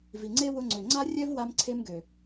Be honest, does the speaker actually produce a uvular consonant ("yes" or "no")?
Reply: no